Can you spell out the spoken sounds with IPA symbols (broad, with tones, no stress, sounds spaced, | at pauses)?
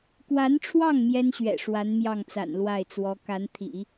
k w a˧˥ n ʈ͡ʂʰ w ɑ˥˩ ŋ m j ɛ˥ n ɕ ɥ ɛ̰˨˩ ʂ w a˧˥ n m j ɑ˥˩ ŋ t͡s a̰˨˩ n l w a˥˩ ɪ̯ t͡s w ɔ˧˥ k a˧˥ n t̪ʰ ḭ˨˩˦